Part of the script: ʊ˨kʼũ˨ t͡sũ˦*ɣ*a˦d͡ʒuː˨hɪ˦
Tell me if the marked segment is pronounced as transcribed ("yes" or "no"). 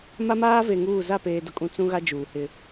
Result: yes